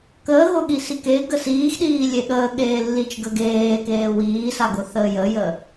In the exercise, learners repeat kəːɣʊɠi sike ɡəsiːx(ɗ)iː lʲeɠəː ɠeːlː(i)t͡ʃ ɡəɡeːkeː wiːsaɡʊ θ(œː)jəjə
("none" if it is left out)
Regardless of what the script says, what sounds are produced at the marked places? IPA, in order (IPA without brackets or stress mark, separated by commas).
ɗ, i, əː